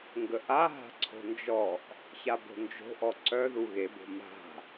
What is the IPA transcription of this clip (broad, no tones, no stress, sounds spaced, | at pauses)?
ŋ ɡ ə ʔ a ɦ a̤ ǀʰ o̤ n d͡ʒ ɔ ʔ | ç a b o̤ n d͡ʒ o̤ ʔ ɔ ǀ œ ð u ɣ e b o̤ m a̤